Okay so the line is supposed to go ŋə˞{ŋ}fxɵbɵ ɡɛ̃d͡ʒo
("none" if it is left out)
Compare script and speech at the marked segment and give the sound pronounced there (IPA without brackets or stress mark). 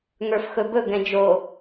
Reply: none